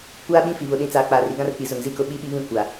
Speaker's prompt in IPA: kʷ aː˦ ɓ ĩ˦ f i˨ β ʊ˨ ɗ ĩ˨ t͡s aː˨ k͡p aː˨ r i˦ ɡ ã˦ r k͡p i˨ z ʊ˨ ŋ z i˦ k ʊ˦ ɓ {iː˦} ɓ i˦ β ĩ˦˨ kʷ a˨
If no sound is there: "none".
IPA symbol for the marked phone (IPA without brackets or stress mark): i˦